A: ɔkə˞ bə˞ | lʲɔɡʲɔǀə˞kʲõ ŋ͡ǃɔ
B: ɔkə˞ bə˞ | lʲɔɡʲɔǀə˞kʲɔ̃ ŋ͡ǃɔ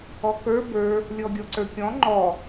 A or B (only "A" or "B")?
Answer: B